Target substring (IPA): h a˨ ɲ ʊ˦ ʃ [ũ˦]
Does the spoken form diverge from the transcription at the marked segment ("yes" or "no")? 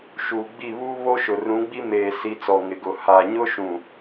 yes